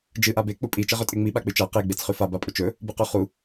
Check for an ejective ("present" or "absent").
present